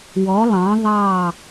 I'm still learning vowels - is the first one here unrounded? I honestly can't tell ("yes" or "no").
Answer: no